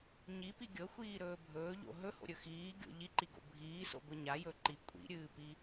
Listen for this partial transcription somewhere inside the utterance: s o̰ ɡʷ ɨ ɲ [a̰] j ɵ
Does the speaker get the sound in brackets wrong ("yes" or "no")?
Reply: yes